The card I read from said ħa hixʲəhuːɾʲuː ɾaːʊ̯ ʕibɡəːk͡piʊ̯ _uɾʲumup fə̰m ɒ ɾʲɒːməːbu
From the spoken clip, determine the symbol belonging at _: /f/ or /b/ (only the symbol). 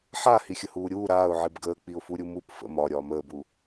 f